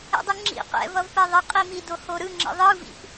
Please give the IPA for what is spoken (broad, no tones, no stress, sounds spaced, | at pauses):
ɛ̰ dˤ ɯ ŋ͡ǁ ḭ q ɛ̰ v ʌ v p ɛ ðˤ ə qʼ i m i d o h o ɾ ɯ ŋ͡ǁ ə̰ ðˤ ɯ v ḭ p